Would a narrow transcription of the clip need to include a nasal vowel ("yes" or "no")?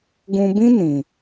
yes